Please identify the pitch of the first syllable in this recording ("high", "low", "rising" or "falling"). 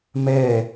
falling